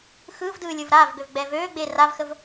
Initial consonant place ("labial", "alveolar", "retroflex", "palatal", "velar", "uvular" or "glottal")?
velar